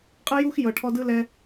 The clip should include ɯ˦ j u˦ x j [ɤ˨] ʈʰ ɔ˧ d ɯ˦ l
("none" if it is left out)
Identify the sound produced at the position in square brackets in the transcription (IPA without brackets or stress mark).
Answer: ɤ˨